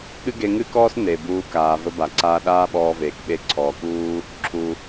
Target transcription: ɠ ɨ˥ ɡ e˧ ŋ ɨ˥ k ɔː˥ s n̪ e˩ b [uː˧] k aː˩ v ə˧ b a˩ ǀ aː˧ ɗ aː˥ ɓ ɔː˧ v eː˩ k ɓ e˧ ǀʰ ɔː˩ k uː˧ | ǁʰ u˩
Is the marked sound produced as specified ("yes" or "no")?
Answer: yes